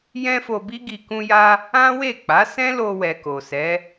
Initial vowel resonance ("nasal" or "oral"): nasal